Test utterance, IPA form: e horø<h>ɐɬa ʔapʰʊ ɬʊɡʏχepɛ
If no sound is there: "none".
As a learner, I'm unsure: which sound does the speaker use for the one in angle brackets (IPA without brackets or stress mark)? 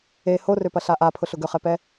p